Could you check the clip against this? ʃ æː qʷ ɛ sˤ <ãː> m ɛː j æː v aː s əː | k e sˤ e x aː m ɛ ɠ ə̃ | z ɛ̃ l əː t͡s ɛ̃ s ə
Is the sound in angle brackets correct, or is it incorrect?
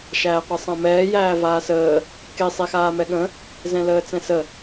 incorrect